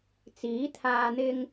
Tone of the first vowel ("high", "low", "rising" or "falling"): rising